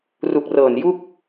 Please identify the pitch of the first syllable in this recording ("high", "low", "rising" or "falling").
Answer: low